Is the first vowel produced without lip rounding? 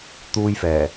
no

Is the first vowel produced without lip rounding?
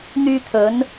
no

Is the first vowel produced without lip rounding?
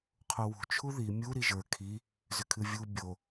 no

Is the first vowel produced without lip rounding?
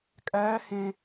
yes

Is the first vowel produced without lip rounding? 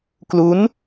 no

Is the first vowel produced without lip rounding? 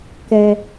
yes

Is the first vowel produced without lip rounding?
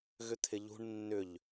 no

